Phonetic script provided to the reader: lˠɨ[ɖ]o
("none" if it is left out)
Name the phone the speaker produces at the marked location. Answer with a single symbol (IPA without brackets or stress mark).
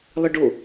ɖ